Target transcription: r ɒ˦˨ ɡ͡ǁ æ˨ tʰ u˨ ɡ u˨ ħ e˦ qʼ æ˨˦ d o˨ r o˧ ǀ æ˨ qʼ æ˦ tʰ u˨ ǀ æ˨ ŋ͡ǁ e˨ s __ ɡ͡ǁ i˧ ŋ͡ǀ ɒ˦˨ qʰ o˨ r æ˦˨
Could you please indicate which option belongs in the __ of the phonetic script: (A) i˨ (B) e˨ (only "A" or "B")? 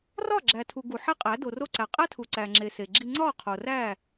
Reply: B